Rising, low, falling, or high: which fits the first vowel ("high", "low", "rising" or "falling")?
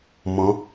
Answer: rising